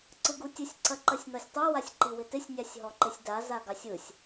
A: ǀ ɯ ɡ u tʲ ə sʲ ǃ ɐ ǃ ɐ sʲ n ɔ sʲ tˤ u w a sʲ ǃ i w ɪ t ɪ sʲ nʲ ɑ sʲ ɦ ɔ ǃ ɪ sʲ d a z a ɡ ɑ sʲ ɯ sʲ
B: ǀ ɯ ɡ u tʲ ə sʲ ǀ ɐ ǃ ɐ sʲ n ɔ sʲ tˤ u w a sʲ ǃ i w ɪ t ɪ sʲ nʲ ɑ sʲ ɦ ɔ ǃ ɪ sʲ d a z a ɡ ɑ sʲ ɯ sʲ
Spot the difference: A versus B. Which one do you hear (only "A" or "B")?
B